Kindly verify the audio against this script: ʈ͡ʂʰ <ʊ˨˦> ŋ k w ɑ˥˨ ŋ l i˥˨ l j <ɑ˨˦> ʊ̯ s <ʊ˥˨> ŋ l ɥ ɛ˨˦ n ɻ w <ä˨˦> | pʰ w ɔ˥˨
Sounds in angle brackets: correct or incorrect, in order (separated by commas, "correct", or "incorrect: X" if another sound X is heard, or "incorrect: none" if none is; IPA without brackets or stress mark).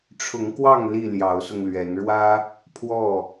correct, correct, incorrect: ʊ˧, incorrect: ä˦